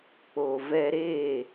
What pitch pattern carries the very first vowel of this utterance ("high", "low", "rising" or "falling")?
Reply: low